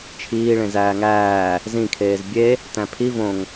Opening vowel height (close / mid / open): close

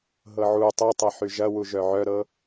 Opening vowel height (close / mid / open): mid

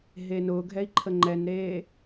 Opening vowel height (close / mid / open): mid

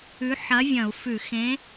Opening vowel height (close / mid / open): close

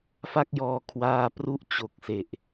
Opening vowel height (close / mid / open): open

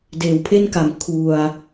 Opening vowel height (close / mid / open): mid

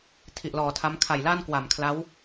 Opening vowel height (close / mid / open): close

